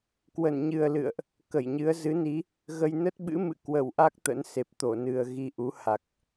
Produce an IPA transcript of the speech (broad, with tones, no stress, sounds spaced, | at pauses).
k w ə˧˩ n ɲ ɨ˨˩ ə̯ l ɨ̰˧˨ ə̯ ʔ | k ə˧˩ j ɲ ɨ˨˦ ə̯ z ɨ˨˦ n i˨˦ | ɣ ə˧ j n ə˦˥ t̚ ɓ ɨ̰˧˥ m ɨ̰˧˨ k w ə˧˩ w ʔ a˦˥ k̚ t̪ ə̰˧˥ n s e˨˩ p̚ t̪ o˧˩ n ɨ˨˩ ə̯ ɣ i˧ ʔ u˨˦ h a˨˩ k̚